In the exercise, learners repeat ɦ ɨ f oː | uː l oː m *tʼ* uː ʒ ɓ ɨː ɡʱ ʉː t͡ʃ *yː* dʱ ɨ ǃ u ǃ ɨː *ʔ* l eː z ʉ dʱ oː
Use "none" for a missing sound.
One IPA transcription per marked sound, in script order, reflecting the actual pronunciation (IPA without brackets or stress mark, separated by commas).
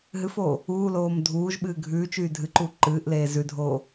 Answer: dʱ, yː, ʔ